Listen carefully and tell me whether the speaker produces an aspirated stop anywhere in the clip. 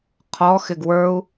yes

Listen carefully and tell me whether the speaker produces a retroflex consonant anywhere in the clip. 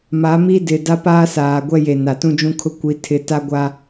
no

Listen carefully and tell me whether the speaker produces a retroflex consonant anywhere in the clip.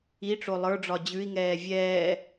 yes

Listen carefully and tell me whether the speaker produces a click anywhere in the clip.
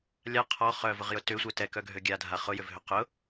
no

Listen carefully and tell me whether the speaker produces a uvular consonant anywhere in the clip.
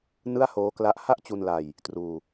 no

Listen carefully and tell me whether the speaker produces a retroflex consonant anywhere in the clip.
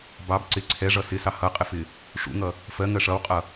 yes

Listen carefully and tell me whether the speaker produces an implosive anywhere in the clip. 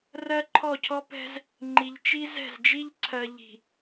no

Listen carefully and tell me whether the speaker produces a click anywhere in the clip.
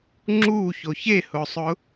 yes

